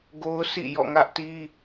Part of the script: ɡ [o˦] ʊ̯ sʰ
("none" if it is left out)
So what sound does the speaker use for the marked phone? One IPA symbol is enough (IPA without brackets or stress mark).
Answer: o˦